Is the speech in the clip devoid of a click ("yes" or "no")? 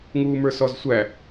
yes